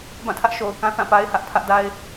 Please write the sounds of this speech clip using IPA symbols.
b ã˦˨ tʰ ä˦ ʔ ʃ o˨ ʊ̯ k ã˦ θ ã˦˨ p a˦ ɪ̯ h ä˦ ʔ pʰ ä˦ ʔ d a˦ ɪ̯

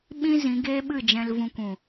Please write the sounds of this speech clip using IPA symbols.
ɓ ĩ˦ z ĩ˨˦ ɡ eː˦ ɓ ɨ˦˨ d͡ʒ ɛ̃˧ l v ũ˧ kʷ ũ˨

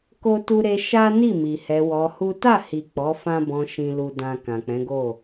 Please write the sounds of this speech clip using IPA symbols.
k o˦ t u˦ ɾ e˦ ʃ a˦ n i˦˨ m i˨ h ɛ˧ w ɔ˧ h u˦ t a˦˨ h i˨ k͡p ɔ˨˦ f ã˦ b ɔ̃˧ ʃ ĩ˨ l u˨ d ã˨ k ã˨ k͡p ɛ̃˨˦ ɡ o˦˨

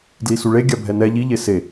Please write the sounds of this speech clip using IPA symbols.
d l i s u ɭ e ɡʲ a bʱ ɛ n ɛ ʎ i ʎ e s e

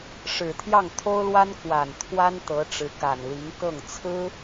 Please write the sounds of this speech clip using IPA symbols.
ʂ ɻ̩˨˩ t̪ʰ j ɑ˥˩ ŋ t̪ʰ o˥ ʊ̯ l w a˥ n k w a˨˩ n t̪ʰ w a˥ n t̪ ɤ˧˥ ʈ͡ʂ ɻ̩˧˥ k a˨˩ n l i˧˥ ŋ k ɤ˥˩ ŋ t͡sʰ ɹ̩˥

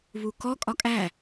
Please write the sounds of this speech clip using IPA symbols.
β u k ɔ kʼ ɒ kʼ æ

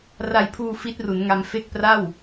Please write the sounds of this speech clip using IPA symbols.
r a˧ j pʰ uː˧ f i˦˥ t̚ r u˩˦ n ŋ a˧ m f e˥˩ k̚ p r a˥˩ w

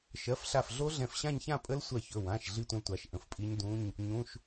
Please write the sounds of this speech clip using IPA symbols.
ʃ ɜ˩˧˩ f ɬ a˧˩ f ɮ o˦˥ ɮ ɛ̃˧˩ f ɕ ã˥˧ ɲ ç ã˥˧ pʼ ə˦˥ l sʷ ɜ˧˩ ç ɵ˩˧˩ w ã˩˧˩ ʃ ɮ i˥˧ tʷ ə̃˦˥ l tʷ a˩˧˩ ʃ ʔ ə̃˧˩ f pʼ i˦˥ ɲ d ũ˧˥˧ ɲ | ɲ ũ˩˧˩ ʃ

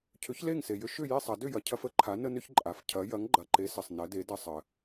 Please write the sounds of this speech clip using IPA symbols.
cʰ ʏ˨˥ ç l e˥˨ ŋ s e˨ j ʏ˦ ʃ ʏ˥˨ j e˥˨ sˤ ɐ˨˩˦ d ʏ˥˨ j ɐ˨ cʰ ɐ˦ f ə˥˨ ǃʰ a˨˥ n ə˦ n ʏ˦ ç ǃʼ a˨ f cʰ ɐ˨˥ j ɐ˨˥ ŋ ɡ͡ǃ ɐ˨ ǃ e˨˥ s ə˨ sˤ n ɐ˨˥ d e˨˥ d ɐ˦ sˤ ə˨

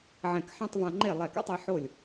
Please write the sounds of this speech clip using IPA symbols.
ʕ ɛ̃˧˩ k ħ ã˥˧ tˤ v ã˧ ŋ͡ǃ e˥˩ lˠ ɛ˧˩ k a̰˥˧ tˤ e˧ ħ o˥˩ lʲ

